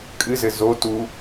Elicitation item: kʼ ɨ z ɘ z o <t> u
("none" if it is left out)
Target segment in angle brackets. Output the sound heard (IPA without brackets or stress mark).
t